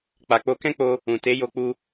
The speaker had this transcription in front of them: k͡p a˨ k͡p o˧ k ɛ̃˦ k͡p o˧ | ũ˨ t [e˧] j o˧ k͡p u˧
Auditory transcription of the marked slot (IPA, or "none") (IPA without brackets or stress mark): e˨˦